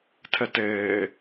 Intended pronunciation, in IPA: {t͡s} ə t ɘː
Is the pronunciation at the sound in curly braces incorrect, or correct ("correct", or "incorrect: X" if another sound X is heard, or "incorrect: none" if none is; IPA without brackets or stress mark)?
incorrect: tʰ